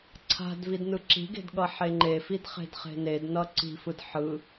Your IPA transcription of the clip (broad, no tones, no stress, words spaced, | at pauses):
ǀʰa̤d vidnɯǁi̤ɡe̤d ɠʌħeŋ͡ǃefid χe̤dχe̤nednʌ ǀi̤fɯd ħɯ